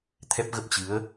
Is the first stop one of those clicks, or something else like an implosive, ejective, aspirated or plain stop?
aspirated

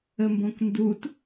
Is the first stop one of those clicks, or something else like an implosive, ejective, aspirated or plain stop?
plain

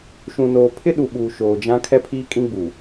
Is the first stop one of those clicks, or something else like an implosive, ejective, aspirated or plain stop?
aspirated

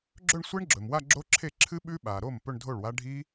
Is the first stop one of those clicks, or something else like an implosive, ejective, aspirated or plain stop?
click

